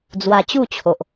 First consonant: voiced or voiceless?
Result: voiced